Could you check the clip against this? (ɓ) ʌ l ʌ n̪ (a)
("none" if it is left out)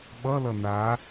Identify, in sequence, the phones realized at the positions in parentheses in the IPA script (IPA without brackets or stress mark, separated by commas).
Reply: ɓ, a